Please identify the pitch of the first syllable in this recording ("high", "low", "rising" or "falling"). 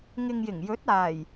low